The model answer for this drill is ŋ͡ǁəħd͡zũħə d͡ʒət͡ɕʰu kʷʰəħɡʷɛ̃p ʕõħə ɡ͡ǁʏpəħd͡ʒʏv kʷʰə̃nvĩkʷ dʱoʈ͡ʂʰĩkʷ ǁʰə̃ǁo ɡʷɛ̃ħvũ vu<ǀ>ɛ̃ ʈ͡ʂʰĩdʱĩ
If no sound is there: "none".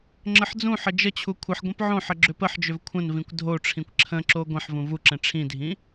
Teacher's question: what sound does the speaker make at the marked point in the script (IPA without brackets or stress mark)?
ǁ